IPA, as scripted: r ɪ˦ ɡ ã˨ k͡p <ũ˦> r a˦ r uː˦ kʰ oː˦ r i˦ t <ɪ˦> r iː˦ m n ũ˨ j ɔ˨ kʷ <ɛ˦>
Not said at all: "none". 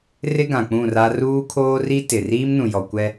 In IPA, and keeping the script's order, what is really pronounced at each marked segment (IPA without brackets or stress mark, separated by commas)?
ũ˦˨, ɪ˨, ɛ˦